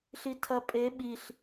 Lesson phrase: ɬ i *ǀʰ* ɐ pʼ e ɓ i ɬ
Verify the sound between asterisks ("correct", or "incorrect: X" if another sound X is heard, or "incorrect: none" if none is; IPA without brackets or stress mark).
incorrect: tʰ